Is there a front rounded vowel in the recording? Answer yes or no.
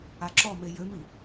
yes